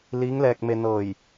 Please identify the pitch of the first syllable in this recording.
rising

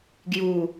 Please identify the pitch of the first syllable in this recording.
falling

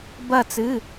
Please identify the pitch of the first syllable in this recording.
falling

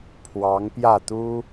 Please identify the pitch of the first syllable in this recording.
rising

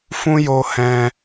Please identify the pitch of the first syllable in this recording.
high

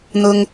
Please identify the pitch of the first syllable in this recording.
low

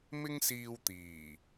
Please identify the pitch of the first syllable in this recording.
high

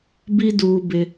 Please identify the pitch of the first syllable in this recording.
high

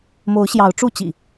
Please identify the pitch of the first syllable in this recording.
rising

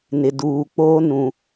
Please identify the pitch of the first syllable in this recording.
low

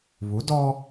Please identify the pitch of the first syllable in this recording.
rising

